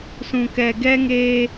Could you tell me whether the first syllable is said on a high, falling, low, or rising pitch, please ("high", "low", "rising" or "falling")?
low